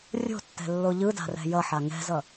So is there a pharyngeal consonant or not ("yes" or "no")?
yes